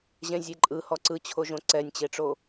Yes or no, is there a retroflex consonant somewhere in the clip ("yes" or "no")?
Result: yes